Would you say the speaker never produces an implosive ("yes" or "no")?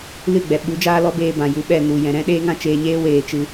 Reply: no